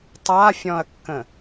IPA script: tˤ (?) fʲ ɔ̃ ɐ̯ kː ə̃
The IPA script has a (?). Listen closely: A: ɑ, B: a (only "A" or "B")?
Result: B